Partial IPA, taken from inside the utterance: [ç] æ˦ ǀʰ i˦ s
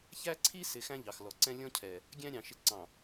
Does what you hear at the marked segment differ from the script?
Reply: no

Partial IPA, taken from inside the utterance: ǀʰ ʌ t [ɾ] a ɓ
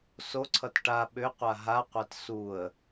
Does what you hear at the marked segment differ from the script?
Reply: yes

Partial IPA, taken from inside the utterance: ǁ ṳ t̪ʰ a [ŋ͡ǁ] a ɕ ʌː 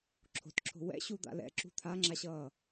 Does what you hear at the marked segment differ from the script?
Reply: no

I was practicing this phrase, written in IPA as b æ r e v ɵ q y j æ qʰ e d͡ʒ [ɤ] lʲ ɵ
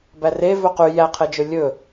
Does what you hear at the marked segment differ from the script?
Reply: yes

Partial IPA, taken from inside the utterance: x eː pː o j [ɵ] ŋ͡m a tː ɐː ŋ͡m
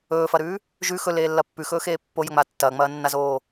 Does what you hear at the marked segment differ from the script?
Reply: no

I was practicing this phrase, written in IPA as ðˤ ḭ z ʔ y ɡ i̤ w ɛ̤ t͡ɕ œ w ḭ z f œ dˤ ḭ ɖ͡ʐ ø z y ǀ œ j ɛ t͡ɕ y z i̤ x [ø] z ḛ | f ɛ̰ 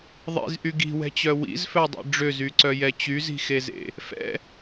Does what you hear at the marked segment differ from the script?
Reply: yes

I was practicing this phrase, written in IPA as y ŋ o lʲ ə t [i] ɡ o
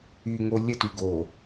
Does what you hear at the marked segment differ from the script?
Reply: yes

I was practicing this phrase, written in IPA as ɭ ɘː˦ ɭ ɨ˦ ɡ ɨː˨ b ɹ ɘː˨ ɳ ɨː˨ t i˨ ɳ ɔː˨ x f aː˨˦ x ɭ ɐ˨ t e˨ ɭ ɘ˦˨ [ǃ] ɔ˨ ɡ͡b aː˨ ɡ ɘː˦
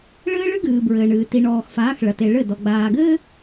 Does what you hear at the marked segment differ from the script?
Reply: yes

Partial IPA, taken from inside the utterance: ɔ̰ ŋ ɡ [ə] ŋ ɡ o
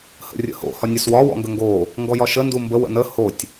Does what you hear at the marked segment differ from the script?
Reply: no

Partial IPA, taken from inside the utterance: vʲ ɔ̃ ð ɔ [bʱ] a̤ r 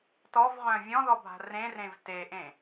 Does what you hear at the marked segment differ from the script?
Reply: no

